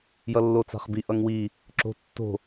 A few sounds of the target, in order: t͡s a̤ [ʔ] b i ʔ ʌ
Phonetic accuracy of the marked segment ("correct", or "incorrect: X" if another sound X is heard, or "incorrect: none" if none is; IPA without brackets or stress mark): incorrect: χ